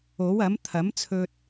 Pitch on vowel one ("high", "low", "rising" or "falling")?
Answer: rising